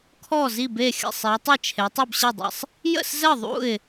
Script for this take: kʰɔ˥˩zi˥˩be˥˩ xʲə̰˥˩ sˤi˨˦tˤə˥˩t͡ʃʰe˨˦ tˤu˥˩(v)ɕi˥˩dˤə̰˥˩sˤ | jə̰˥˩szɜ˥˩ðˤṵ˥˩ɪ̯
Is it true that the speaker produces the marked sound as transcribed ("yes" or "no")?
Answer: no